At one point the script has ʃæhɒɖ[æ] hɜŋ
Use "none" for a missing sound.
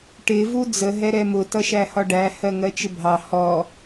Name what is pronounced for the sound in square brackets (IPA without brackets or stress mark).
æ